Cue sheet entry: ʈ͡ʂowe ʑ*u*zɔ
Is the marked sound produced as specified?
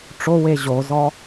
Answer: no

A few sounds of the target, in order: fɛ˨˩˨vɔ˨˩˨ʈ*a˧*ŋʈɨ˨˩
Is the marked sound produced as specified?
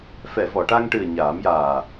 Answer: yes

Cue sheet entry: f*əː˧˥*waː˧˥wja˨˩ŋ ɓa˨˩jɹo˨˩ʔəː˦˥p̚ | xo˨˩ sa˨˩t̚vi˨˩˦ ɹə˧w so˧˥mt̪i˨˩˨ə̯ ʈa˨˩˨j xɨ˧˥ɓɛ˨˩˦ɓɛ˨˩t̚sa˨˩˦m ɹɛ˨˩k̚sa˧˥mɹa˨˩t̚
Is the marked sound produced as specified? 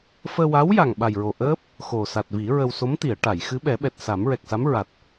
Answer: no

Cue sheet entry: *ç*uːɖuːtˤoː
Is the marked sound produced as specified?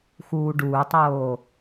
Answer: no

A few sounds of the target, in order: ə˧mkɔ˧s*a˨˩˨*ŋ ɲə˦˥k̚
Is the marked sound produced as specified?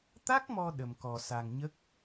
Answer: no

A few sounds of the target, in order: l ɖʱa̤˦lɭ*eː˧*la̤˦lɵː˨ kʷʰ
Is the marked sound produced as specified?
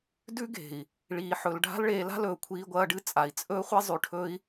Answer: yes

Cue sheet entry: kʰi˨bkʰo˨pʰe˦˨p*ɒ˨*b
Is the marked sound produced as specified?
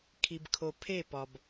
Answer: yes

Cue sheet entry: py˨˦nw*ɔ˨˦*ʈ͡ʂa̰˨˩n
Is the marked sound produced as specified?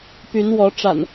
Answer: yes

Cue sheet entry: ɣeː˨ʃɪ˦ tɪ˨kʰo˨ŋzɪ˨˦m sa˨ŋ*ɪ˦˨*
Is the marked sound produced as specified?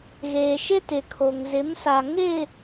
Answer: yes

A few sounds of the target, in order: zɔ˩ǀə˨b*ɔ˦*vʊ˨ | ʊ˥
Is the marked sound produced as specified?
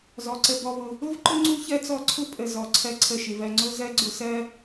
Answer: no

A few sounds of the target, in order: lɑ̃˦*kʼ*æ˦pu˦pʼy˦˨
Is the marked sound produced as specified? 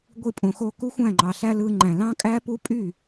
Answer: yes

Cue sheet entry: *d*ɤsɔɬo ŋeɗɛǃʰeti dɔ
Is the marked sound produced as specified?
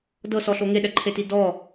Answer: yes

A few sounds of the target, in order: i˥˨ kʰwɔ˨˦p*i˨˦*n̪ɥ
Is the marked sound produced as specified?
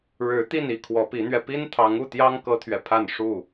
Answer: yes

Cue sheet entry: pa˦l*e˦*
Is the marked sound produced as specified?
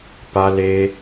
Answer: yes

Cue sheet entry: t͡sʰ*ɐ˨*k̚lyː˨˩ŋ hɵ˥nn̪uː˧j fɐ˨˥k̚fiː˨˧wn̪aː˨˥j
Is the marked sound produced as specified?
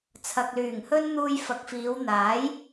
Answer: yes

